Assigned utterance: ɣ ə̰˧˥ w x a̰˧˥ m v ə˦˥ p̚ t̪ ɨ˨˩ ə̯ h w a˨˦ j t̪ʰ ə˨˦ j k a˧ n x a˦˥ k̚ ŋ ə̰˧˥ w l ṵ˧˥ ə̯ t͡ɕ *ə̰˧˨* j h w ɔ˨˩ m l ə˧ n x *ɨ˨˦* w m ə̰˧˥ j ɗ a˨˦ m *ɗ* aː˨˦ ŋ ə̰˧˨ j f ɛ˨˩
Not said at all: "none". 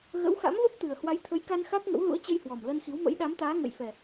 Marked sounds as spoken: ə˧, i˨˦, t̪

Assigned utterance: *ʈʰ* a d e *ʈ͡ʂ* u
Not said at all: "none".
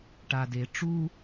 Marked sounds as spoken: ʈ, ʈ͡ʂ

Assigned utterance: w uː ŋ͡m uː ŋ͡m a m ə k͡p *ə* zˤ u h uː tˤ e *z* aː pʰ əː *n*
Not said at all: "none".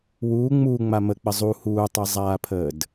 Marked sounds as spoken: ə, zˤ, d

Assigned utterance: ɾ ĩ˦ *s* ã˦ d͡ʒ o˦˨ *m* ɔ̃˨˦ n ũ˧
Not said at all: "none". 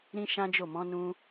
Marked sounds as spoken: ʃ, m

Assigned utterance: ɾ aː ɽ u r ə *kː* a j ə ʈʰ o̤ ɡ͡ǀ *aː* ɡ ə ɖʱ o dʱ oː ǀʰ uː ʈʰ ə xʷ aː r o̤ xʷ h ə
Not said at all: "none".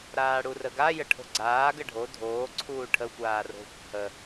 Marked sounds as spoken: ɡ, aː

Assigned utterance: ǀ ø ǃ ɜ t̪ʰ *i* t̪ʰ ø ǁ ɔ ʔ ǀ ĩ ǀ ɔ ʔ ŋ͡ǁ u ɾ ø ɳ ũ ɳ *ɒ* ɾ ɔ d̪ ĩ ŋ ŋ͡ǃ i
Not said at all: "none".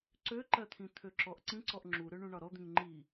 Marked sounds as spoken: ĩ, ɒ

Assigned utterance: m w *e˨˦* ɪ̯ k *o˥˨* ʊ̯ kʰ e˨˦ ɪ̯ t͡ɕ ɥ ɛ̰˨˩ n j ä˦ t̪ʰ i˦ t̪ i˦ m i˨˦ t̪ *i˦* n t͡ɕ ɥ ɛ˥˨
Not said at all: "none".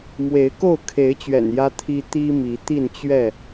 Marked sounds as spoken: e˨˦, o˥˨, i˥˨

